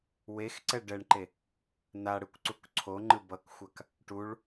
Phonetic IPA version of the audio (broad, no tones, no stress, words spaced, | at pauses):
wexǀɛ ɖɛɳǃe | na ɽɯkʷǀukǀʰoŋ͡ǃɯ bʌkxʷak | ʈuɭ